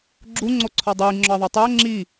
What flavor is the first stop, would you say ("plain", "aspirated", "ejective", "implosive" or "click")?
click